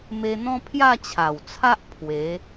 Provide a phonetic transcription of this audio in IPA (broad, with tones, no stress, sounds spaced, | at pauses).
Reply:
m e˧ n̪ ɔ̃˦ pʰ j a˥˧ t͡ɕʰ a˨˩ w t͡sʰ a˦ ʔ pʰ w e˨˦